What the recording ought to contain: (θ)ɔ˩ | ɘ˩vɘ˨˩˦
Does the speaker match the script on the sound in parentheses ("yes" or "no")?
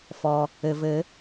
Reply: no